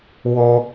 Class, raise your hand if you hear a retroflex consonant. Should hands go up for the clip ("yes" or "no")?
no